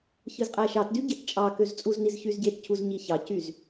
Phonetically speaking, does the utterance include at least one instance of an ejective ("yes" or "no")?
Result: yes